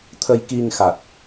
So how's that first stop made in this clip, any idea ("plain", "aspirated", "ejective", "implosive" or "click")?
aspirated